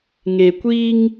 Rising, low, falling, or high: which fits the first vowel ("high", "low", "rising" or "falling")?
low